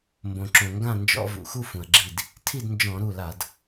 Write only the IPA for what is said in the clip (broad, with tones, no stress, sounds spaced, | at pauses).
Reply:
m b õ˩ ǁ õ˩ ŋ ɡ ã˥˨ n d͡ʒ ɔ̰˧ v ṵ˩ x u˥˨ f ũ˩ ɐ̯ ɡ͡ǁ i˧˩ d | tʰ i˥˨ d n d͡ʒ ɔ̃˧˩˧ ɾ u˧˩ l a˧˩˧ d